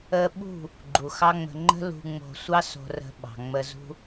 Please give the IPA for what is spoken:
ə˧ ɓ ṳ˦˨ | ɡ͡ǃ u˨ x ɑ˦ ŋ͡m ə̤˧ ŋ͡ǃ ə̤˦ l ṳ˧ ŋ͡m o̤˧ sʷ ɑ˦ s o̤˧ r ə̤˧ ɓ ɑ̤˨ ŋ͡m ə˧ z ṳ˦

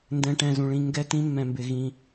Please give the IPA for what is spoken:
n d ɛ̃˧ ʈ ɛ̃˧ z ũ˧ ɭ ĩ˦ ŋ ɡ ɛ˦ t ĩ˦ mː ɛ̃˧ m b ɪ˧ ɣ ĩ˧

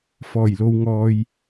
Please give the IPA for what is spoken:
f ɔː˨˩ j l o˨ w ŋ ɔː˨ j

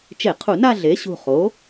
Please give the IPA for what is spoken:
t͡ʃ e˧˩˧ qʰ u˧˩˧ n a˥˧ ɮ e˩˥ ɕ ṳ˧˩ χ o˩˥

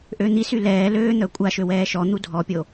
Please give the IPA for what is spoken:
ʔ ø n̪ i s y l ɛː l øː n̪ œ kʷʼ a ʃ ø w ɛː ʃ ɔ n̪ u dʱ ɔ pʲ o

